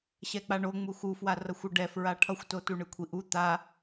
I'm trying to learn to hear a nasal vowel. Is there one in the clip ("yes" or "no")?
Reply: no